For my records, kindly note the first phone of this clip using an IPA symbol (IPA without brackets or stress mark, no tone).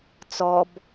t͡s